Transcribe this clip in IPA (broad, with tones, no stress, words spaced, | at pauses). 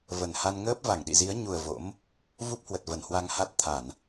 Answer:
və˨˩nha˧n ŋəː˦˥p̚va˧˩ŋɗḭ˧˨zi˨˦ə̯ ɲu˨˩ə̯ vo̰˧˥m | vu˦˥p̚hwə˨˩t̚ və˧˩nhwa˧ŋha˦˥t̚ t̪ʰa˧˩˨n